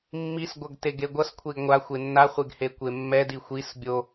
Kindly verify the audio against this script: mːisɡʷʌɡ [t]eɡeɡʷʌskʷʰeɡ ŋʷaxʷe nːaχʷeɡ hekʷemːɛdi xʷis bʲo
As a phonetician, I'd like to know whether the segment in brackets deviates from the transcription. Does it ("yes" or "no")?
no